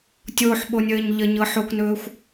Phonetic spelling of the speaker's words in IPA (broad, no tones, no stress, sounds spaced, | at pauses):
tʲ o ħ ɓ o nʲ əː ɲ ʎ ə ɲ ɤ ħ o k n ɵː xʷ